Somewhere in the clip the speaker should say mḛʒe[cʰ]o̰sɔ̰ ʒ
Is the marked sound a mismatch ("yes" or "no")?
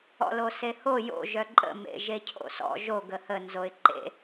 no